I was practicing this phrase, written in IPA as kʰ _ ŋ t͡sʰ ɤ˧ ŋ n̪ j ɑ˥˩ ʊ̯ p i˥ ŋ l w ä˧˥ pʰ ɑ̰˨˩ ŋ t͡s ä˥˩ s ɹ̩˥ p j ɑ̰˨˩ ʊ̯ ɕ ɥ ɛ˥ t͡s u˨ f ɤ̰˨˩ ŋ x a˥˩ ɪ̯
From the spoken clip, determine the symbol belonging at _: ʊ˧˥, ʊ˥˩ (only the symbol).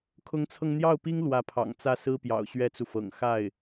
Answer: ʊ˧˥